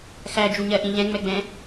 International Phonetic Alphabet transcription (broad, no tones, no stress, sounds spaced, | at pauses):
x æ d͡ʒ u ɲ ɜ ʔ ĩ ʎ ɛ̃ ŋ͡m ɛ ɡ͡b ɛ̃